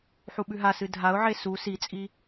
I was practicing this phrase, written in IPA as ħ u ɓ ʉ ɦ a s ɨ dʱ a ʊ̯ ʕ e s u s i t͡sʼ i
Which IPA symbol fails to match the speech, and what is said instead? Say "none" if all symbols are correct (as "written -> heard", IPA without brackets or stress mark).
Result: none